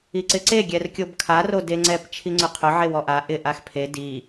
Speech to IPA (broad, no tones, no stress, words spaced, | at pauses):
iǀɪǀe ɡʲɛrkʲobkʰa rodeŋ͡ǀɛp t͡ʃʰiŋ͡ǀʊqʰʊ ʕewɔʔa ʔɪ ʔaxpʰe di